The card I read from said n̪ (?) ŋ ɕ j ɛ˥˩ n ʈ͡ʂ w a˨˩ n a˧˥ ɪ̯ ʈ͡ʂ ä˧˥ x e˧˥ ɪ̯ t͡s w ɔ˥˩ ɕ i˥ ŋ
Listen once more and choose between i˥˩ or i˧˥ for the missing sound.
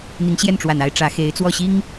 i˧˥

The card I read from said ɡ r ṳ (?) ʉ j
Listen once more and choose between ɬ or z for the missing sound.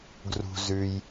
z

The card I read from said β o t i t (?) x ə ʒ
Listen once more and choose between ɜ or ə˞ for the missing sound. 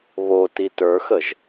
ə˞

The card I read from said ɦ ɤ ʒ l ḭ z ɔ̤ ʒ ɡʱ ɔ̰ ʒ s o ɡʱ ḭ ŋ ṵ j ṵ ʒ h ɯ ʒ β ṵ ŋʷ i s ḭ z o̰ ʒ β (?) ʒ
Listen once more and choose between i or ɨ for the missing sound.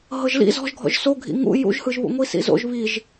i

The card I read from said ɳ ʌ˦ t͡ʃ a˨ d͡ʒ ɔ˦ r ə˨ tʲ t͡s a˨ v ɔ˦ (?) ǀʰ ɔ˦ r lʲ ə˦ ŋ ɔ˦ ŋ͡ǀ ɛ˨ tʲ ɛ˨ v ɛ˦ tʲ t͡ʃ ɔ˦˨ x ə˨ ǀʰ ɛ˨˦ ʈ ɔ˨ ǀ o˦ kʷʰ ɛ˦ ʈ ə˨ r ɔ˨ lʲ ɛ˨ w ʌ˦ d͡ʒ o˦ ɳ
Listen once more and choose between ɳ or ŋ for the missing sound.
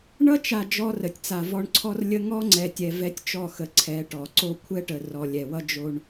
ɳ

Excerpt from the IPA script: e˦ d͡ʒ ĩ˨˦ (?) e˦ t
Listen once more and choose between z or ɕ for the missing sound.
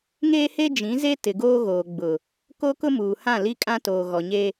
z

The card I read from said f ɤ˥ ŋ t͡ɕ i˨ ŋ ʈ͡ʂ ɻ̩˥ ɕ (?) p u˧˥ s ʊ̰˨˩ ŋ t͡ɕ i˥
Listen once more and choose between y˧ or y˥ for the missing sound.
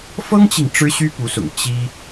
y˥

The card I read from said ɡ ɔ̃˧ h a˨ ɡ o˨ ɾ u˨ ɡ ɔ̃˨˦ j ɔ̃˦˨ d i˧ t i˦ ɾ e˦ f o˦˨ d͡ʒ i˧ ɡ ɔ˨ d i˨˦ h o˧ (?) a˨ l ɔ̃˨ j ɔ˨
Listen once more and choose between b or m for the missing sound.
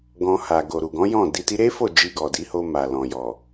m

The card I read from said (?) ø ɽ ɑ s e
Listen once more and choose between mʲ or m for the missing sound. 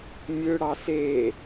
mʲ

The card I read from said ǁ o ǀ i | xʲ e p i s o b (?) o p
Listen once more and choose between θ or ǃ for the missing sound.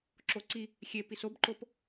ǃ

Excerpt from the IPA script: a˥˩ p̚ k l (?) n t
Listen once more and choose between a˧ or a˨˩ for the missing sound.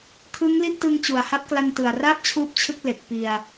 a˧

